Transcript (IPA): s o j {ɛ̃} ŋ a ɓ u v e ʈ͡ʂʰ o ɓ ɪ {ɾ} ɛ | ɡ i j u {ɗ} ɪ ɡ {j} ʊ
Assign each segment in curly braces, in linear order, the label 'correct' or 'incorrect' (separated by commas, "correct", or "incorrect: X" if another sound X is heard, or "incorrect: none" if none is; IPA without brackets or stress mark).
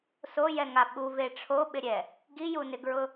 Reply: incorrect: ɛ, incorrect: ɾʲ, incorrect: n, incorrect: ɹ